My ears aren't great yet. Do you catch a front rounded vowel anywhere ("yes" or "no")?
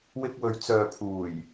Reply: yes